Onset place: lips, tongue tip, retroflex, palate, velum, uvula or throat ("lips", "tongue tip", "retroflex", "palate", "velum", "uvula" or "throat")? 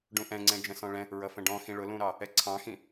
retroflex